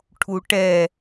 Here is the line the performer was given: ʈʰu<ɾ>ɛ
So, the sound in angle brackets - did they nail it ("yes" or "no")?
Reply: no